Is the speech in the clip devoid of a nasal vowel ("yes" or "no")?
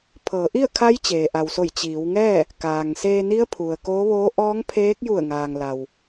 yes